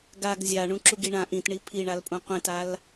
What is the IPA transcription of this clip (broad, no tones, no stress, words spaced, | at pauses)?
ɡaɡ zʲa ɳũǁuɡiɳã ʔĩtɳi pʰiɳalpʼũ qʷĩtal